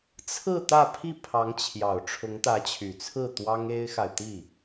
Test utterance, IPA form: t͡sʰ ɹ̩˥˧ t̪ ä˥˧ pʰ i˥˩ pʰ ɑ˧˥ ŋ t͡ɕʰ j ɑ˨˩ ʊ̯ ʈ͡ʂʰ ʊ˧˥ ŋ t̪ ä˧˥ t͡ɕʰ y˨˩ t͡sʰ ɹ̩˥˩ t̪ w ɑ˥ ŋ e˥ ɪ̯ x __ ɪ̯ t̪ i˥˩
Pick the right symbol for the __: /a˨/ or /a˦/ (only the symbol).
a˨